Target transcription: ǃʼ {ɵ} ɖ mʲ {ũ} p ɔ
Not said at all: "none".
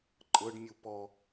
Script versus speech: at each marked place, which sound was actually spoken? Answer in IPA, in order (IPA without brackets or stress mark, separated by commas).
ɤ, u